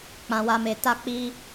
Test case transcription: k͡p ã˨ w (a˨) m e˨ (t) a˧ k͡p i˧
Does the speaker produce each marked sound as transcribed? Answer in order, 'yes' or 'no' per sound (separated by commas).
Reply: yes, yes